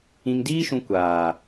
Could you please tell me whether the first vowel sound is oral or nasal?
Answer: nasal